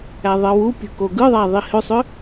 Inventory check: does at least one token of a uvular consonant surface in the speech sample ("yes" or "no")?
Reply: no